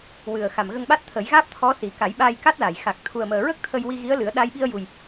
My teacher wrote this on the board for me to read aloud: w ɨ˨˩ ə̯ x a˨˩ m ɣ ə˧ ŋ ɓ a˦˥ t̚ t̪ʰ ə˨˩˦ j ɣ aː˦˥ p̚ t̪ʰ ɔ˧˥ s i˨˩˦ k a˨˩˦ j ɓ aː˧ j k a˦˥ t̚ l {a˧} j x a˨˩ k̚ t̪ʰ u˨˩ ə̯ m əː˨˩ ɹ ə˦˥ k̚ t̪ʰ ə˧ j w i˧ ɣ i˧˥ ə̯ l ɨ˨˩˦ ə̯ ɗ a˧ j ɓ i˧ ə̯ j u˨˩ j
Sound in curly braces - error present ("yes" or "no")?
yes